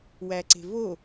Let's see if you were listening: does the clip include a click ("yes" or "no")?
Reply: yes